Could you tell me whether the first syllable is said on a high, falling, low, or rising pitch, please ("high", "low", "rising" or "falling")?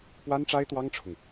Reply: high